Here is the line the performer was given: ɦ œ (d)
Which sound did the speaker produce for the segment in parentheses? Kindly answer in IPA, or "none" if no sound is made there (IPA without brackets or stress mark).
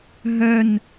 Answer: n